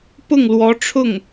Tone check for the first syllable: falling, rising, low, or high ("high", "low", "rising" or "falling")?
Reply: falling